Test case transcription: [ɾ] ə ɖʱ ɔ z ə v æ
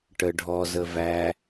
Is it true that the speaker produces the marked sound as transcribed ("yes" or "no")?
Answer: no